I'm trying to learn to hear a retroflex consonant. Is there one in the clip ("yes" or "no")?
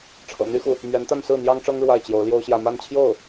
yes